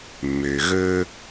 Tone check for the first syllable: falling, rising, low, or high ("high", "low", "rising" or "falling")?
low